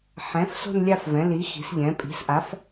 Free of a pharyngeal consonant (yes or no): no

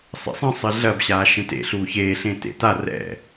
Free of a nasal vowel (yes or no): no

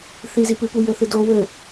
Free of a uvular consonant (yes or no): yes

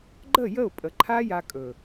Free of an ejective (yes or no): no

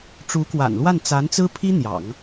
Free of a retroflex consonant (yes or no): no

